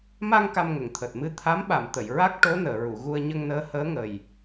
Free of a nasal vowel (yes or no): yes